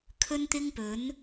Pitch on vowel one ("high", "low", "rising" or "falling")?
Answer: high